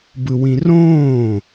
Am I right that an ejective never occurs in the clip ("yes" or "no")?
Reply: yes